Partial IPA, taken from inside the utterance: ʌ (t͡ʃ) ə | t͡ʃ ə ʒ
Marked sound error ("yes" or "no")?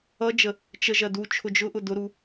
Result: yes